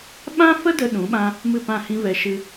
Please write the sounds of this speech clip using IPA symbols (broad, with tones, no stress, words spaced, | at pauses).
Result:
ɓã˦fə˦ də˦ɗũ˨˦ɓã˦ | mɨ˦˨pã˦˨hĩ˦vɛ˧ ʃɨ˧